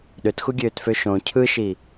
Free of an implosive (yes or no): no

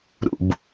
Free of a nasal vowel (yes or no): yes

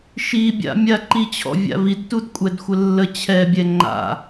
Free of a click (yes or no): no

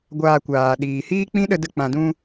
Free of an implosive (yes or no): no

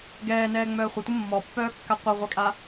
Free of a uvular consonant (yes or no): no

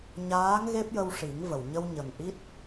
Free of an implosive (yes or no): yes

